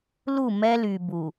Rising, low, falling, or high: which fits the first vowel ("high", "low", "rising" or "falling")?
falling